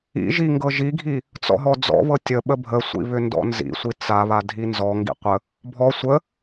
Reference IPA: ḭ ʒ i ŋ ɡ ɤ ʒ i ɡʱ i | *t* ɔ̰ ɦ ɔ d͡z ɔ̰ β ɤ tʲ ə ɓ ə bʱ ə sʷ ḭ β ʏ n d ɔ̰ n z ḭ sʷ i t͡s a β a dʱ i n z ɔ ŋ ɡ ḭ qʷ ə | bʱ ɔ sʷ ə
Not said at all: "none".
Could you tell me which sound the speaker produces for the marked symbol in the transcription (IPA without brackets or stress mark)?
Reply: t͡s